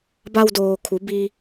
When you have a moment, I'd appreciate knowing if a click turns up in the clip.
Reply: no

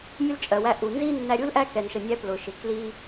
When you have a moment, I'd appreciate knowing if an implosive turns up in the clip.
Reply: no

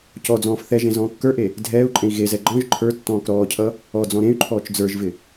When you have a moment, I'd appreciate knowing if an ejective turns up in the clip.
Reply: yes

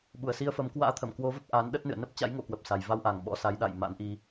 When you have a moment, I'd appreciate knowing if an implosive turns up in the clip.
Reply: yes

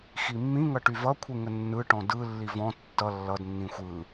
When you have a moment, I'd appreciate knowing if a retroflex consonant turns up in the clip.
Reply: yes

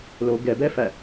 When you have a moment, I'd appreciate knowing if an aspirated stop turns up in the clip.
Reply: no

